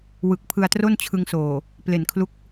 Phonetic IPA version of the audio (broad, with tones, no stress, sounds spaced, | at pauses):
w ɯ˨˩ k̚ pʰ ɯ˧ a̯ t r o˥˩ n t͡ɕʰ ɯ˧ ŋ s oː˨˩ | p l e˨˩ n kʰ l u˦˥ k̚